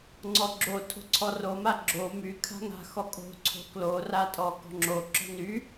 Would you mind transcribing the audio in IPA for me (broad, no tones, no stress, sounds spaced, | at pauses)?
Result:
ŋ͡ǀ ɔ ɡ͡ǁ o tʰ o̤ ǀʰ ɔ r o m a ɡ͡ǁ o m y kʰ a̤ ŋ a̤ x ɔ kʼ o̤ ǀʰ o̤ k l o r a tʼ ɔ k ɔ̤ ŋ͡ǁ o ǁ ɔ̤ n y